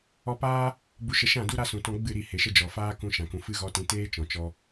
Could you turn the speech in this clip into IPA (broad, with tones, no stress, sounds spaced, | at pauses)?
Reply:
ɔ˧ p aː˦ | b u˧ ʃ ə˧ ʃ ã˦˨ d u˦ ɾ a˦ s ũ˨ t ɔ̃˧ ɡ͡b ɨ˦˨ ɾ i˦˨ h e˨ ʃ ə˧ d͡ʒ ɔ˨ f aː˦ k ũ˧ ʃ ã˨ k ũ˨ f ɨ˦ ɣ ɔ˦ t ĩ˧ t eː˦ t͡ʃ ɔ̃˨ t͡ʃ ɔ˧